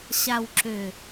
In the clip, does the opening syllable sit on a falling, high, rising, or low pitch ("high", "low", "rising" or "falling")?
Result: low